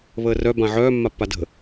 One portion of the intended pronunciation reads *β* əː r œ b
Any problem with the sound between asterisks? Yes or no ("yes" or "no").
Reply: no